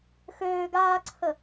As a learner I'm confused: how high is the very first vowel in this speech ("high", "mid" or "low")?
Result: mid